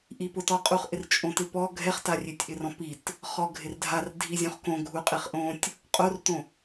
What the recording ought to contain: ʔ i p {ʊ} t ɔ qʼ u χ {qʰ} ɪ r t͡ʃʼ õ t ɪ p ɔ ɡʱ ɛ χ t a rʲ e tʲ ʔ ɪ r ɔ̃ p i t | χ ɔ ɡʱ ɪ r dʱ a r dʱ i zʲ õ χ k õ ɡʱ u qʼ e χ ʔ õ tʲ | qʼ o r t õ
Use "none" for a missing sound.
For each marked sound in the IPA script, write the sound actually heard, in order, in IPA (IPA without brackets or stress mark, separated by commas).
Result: ʊ, ʔ